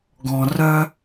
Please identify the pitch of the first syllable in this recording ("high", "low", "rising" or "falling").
low